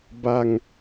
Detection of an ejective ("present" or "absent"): absent